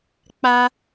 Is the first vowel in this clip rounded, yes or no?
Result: no